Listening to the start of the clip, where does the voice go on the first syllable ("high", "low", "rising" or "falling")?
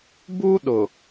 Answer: high